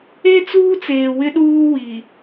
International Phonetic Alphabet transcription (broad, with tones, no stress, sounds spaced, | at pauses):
e˦ t͡s uː˦ t͡s eː˨ w ɪ˦ ɗ uː˦ w i˨